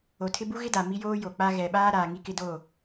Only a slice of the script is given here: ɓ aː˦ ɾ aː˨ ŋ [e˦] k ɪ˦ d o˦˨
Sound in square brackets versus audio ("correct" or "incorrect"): incorrect